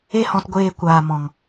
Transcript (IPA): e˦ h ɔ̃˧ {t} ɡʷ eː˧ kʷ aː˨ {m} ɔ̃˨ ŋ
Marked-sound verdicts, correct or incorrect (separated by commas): correct, correct